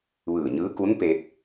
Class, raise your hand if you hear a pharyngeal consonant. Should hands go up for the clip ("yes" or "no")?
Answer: no